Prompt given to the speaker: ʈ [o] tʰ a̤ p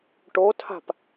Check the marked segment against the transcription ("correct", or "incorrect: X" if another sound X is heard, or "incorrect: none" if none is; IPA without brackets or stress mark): correct